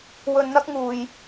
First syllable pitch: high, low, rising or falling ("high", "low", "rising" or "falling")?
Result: low